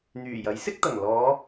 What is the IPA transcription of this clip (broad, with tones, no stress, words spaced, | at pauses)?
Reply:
n̪yː˨˩jɐ˨˥jsɪ˥k̚t̪ɐ˨˩ŋ lɔː˨˧